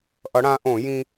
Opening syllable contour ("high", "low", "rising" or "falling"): rising